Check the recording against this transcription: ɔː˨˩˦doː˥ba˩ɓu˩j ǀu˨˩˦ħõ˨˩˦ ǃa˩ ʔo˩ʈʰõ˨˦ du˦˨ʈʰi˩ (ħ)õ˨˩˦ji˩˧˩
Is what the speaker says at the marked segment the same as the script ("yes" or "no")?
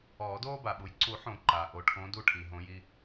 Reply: no